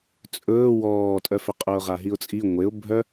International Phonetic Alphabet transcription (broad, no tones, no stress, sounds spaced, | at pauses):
t͡sʼ ɵː w ɔː tʼ œ f ʏ qʼ ʊː ʁ a ɦ i ʊ̯ t͡sʼ i ŋʷ e ʊ̯ bʱ œ